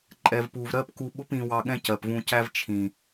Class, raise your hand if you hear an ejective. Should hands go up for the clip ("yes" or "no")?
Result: yes